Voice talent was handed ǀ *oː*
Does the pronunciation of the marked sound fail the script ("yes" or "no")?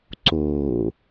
no